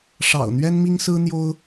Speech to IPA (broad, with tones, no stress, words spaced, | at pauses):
ʂɑ̰˨˩ʊ̯n̪ɥɛ˥nmi˥ŋsɹ̩˥ n̪jo˥ʊ̯